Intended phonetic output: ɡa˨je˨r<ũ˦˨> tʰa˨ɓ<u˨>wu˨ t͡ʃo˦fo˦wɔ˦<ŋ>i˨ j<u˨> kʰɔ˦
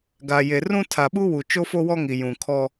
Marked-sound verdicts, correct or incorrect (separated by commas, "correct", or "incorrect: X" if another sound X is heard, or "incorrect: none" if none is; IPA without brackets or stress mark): incorrect: ũ˦, incorrect: u˦, correct, incorrect: ũ˨